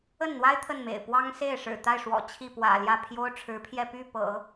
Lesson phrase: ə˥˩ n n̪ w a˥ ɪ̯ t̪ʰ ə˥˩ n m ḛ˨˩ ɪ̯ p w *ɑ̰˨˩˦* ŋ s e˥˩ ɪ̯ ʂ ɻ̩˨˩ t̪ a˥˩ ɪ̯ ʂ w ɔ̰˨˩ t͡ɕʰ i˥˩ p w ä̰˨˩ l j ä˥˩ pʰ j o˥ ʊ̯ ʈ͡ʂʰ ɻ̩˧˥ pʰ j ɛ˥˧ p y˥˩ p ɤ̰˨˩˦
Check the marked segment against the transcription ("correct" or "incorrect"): incorrect